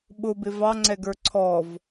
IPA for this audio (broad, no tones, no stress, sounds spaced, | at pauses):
ɓ ʊ b ɪ v ɑ ŋ͡ǀ ɛ ɡ ə˞ ǀʰ ɔ v